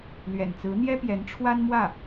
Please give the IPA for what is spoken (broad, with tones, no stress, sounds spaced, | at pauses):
l ɥ ɛ̰˨˩ n t͡s ɹ̩˧˥ n̪ j ɛ˥ p j ɛ˧˥ n ʈ͡ʂʰ w a˥ n m w ä˥˩